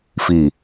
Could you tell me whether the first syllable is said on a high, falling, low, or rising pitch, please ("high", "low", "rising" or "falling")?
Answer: falling